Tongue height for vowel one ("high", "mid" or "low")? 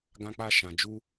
low